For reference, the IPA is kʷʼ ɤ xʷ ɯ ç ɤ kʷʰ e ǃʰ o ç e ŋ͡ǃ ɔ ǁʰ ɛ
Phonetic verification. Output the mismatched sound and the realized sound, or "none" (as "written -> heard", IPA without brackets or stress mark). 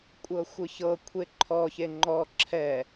o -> ɔ